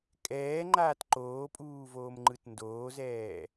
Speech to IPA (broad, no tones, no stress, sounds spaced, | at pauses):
kʼ ɛː ŋ͡ǃ aː t ǃ oː pʼ uː v oː m ŋ͡ǃ ɯ t n d oː z ɛː